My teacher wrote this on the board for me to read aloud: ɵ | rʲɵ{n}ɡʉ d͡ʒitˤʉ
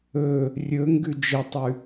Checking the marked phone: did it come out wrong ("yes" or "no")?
yes